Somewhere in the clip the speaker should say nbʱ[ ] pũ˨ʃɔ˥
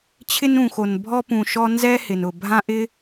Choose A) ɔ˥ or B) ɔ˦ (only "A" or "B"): A